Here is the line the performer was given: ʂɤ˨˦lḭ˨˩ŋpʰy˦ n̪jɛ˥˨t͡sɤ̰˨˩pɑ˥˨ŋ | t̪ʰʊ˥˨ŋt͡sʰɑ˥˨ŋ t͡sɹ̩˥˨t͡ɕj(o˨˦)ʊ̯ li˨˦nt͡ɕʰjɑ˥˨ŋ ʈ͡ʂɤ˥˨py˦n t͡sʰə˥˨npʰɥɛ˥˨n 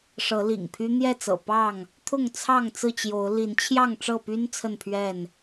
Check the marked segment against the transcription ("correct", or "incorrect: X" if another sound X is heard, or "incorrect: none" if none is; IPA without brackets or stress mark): correct